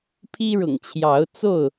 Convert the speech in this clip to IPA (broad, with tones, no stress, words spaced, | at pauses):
pʰi˦ɻʊ̰˨˩ŋt͡ɕʰjɑ˨˦ʊ̯ t͡so˥˨ʊ̯